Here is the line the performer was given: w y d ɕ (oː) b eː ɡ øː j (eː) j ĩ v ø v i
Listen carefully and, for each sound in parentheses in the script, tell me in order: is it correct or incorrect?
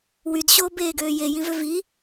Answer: correct, incorrect

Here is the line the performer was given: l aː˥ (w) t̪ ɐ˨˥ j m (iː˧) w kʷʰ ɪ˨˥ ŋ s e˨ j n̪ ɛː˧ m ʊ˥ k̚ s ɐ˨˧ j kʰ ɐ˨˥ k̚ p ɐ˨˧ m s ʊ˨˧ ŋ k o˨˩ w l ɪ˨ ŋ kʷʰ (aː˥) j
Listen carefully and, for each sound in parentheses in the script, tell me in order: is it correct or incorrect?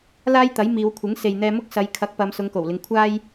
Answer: incorrect, incorrect, incorrect

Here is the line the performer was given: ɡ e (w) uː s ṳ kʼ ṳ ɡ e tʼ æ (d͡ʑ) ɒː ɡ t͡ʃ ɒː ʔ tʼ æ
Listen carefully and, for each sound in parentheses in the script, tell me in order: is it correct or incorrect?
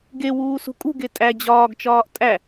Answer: correct, correct

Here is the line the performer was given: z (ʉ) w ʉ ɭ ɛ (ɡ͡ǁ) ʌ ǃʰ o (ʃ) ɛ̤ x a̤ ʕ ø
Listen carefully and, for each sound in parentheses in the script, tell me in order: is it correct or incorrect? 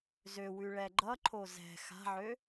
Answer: incorrect, incorrect, incorrect

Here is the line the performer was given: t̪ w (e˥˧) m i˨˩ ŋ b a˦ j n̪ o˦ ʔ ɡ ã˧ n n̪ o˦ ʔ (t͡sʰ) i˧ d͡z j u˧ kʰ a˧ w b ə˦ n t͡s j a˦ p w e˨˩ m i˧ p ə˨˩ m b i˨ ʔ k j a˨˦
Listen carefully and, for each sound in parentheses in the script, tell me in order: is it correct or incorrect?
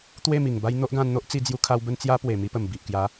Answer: correct, incorrect

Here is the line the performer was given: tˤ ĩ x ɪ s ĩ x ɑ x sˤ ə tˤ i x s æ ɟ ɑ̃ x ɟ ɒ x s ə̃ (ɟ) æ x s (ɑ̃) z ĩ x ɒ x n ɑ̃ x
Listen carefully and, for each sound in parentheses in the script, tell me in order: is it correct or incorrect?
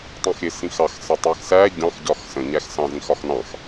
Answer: incorrect, correct

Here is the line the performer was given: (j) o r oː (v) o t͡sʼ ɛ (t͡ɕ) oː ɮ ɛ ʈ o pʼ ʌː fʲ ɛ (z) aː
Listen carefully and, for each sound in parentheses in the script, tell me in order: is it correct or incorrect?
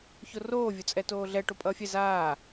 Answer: incorrect, incorrect, incorrect, correct

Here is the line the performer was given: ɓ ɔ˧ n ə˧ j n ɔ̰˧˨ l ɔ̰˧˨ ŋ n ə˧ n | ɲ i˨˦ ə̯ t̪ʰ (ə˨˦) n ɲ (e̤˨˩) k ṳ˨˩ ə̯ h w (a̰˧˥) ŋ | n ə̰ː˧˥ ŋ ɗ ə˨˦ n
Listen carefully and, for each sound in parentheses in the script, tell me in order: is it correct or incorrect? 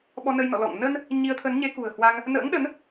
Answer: correct, incorrect, incorrect

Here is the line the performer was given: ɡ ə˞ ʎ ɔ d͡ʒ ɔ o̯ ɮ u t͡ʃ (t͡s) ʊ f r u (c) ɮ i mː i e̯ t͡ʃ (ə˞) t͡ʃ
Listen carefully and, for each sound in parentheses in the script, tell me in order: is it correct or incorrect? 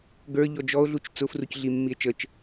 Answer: correct, correct, incorrect

